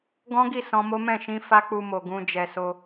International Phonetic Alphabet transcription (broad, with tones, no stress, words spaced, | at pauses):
ɡɔ̃˦ɡi˦˨ sɔ̃˧mo˦ mɛ̃˦˨ʃĩ˧ fa˦k͡pu˧mo˨ ɡũ˧ d͡ʒɛ˨so˧